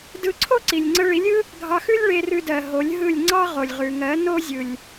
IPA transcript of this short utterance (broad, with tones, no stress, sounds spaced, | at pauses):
d ɯ˧ ǀʰ o˦ ǀ i˨ lʲ ŋ͡ǀ ə˧ ɭ i˨˦ lʲ ɯ˦ | ɡʱ ɑ˧ x ʉ˦ lʲ ɭ e˧ r ʉ˧ d ɜ˨ ɦ o˨˦ lʲ ɦ ɯ˦˨ lʲ ŋ͡ǀ ɑ˦ ʁ o˨ lʲ ʁ ʉ˨ ŋ ɜ˨˦ n o˦ zʲ ɯ˨ lʲ